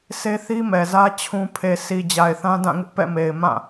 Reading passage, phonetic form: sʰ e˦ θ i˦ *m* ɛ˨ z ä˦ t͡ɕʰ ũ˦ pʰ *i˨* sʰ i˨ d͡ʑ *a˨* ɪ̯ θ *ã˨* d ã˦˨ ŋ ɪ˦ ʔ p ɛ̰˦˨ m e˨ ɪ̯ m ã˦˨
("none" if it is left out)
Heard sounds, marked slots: m, e˨, a˨, ã˦

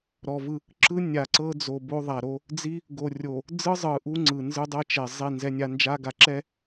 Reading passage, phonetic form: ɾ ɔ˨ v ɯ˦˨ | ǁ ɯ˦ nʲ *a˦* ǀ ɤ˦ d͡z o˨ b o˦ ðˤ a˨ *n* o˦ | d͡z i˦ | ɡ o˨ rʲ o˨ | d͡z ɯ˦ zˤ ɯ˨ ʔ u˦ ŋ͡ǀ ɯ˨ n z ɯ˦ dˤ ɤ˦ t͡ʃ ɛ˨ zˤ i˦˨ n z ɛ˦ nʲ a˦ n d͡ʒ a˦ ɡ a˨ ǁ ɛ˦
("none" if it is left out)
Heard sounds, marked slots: a˨, ɾ

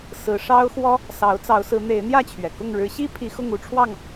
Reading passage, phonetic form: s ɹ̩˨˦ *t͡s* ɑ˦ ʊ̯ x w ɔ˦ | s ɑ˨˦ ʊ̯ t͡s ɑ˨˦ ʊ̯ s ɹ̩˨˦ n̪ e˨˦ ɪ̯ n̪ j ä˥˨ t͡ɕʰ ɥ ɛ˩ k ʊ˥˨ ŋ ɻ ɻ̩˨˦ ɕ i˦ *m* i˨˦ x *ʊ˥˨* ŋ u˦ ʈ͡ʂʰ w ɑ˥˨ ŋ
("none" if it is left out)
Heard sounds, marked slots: ʂ, pʰ, ʊ˥˨

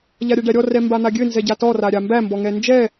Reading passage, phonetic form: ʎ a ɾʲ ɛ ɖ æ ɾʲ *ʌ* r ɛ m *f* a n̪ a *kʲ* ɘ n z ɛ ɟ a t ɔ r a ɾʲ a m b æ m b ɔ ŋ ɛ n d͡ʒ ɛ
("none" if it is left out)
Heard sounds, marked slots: ɔ, b, ɡʲ

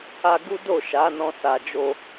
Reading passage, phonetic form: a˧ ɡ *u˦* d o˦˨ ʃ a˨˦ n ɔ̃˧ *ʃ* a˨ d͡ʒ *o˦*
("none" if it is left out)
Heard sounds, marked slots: u˦, s, o˧

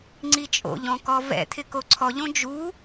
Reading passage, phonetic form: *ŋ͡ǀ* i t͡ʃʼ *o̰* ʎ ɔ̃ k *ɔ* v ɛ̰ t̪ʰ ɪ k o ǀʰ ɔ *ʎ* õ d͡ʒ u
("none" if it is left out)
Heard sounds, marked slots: ŋ͡ǀ, o̰, ɔ, ʎ

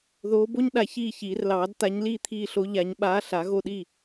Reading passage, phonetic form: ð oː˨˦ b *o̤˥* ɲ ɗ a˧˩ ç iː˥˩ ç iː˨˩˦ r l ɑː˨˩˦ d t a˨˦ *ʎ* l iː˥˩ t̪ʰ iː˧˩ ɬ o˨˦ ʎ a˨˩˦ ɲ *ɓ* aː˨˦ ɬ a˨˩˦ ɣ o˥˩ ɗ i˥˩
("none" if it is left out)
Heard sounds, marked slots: o˥, ɲ, ɓ

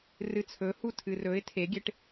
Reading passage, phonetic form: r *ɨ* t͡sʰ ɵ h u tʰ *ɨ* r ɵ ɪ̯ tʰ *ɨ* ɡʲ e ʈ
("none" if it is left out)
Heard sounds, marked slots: ɨ, ɨ, e

